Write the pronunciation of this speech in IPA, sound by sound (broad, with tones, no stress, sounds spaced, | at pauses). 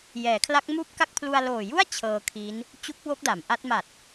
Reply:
j ɛː˩˦ kʰ l a˦˥ k̚ m uː˥˩ p̚ k a˥˩ k̚ pʰ l u˧ a̯ l oː˨˩ j u˥˩ a̯ t͡ɕʰ ɤː˧ kʰ i˦˥ n | t͡ɕ u˦˥ k̚ w o˦˥ k̚ d a˩˦ m ʔ a˦˥ t̚ m a˨˩ t̚